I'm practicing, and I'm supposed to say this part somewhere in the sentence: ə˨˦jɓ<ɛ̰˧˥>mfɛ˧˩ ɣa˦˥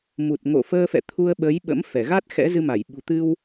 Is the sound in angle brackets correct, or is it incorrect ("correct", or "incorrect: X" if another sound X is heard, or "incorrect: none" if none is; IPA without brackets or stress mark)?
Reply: incorrect: ə̰˧˥